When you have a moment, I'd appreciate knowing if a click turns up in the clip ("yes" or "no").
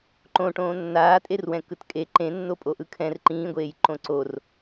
yes